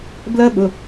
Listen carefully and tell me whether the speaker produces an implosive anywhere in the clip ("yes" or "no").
yes